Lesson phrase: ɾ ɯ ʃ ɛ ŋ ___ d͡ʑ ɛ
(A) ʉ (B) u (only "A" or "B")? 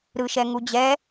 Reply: B